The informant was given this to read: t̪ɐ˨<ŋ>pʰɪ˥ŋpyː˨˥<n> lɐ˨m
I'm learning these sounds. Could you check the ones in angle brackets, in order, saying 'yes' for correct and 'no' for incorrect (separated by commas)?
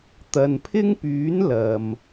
no, yes